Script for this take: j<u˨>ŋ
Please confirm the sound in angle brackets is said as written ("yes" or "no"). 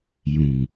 no